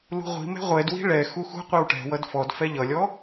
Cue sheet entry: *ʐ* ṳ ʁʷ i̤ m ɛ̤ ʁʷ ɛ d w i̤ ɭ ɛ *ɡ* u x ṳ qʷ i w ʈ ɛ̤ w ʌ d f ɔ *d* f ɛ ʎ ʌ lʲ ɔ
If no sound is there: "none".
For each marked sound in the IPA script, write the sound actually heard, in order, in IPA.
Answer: l, x, d

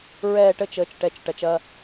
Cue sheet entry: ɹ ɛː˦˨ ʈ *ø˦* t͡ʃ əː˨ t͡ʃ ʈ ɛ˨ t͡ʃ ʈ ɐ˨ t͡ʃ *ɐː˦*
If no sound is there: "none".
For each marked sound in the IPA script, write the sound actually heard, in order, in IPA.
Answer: ə˦, ɐː˦

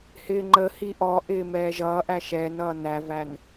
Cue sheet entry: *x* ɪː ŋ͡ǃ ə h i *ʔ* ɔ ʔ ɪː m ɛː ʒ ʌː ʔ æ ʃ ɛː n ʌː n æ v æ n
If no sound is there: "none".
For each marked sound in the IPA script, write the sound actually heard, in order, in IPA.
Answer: h, ʔ

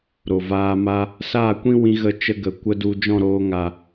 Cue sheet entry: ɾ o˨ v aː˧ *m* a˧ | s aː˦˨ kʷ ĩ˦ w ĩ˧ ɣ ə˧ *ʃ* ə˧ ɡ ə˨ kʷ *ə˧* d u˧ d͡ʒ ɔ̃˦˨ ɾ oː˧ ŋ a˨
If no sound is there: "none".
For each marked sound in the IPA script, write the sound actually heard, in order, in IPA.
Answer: m, t͡ʃ, ə˧

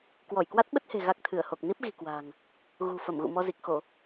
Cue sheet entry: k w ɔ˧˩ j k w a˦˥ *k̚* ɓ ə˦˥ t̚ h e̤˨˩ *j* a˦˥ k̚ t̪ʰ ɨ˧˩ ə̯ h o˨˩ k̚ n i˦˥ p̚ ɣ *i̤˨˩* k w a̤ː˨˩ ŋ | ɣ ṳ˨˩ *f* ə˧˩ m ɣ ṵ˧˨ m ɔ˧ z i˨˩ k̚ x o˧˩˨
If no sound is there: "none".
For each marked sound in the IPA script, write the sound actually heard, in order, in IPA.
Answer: t̚, ɣ, i̤˨˩, f

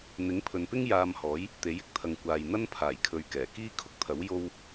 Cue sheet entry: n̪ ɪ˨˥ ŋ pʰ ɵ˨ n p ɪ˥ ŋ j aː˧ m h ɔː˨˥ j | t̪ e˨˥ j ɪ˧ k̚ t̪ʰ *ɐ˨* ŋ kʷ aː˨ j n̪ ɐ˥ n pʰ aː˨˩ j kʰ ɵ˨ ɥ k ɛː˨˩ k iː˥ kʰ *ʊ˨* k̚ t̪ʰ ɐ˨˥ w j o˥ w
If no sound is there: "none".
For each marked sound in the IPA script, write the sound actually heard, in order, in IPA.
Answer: ɐ˨, ʊ˥

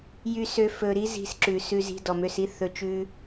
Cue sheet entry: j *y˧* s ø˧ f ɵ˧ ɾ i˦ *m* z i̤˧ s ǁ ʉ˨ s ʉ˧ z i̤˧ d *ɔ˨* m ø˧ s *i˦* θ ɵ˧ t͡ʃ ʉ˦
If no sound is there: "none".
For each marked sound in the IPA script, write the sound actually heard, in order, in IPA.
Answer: y˧, none, ɔ˨, i˦

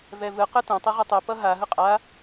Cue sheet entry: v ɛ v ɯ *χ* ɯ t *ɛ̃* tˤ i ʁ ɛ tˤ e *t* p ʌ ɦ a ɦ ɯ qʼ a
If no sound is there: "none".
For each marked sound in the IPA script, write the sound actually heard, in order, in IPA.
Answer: q, ɛ̃, none

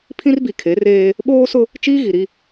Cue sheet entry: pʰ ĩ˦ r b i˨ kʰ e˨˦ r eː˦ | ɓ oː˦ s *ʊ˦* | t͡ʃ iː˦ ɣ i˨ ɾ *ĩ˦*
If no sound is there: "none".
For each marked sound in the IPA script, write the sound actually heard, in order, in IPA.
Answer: ʊ˦, i˦

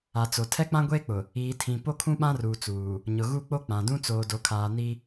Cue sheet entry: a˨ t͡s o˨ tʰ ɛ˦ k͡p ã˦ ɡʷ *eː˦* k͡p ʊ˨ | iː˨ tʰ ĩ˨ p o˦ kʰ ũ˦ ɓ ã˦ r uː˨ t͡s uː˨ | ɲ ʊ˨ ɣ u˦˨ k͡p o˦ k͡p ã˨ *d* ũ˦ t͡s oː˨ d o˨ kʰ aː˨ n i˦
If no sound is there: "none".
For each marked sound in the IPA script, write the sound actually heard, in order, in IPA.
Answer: eː˦, d

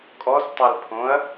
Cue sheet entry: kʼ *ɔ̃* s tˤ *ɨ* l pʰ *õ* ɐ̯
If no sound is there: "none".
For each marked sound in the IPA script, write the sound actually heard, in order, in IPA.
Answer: ɔ, ɛ, õ

